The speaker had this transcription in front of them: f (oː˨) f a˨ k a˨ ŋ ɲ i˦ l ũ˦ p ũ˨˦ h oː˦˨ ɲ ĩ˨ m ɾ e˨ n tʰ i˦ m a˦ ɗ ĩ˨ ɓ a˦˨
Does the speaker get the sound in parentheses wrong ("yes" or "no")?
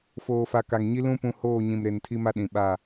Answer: no